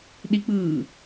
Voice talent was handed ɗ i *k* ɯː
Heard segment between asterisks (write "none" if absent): k͡p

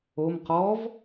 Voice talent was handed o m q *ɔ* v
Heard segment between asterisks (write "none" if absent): ɔ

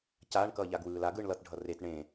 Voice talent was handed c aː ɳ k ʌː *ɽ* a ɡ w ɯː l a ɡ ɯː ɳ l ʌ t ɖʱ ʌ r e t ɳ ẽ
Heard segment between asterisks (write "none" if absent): ʎ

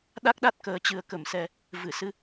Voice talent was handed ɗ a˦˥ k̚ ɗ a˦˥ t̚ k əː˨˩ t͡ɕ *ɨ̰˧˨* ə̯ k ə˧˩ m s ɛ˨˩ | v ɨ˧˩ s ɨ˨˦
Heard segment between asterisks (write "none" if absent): ɨ˨˩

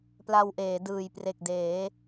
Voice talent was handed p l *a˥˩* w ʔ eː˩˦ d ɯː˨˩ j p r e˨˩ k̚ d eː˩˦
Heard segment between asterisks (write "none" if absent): a˧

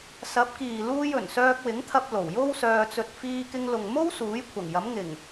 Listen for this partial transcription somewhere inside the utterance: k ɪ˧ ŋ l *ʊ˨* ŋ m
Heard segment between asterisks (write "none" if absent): ʊ˨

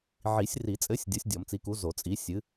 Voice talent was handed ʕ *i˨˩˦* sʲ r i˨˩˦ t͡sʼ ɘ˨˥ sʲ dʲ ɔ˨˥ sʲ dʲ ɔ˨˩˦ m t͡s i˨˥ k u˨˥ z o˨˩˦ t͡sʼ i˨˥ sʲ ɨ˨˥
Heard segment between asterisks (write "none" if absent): i˨˩˦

